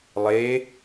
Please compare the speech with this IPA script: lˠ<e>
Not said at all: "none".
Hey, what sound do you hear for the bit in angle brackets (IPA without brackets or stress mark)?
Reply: e